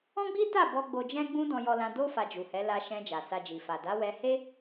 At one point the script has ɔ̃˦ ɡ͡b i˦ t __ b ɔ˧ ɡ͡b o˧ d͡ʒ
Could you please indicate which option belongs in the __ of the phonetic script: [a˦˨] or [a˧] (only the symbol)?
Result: a˦˨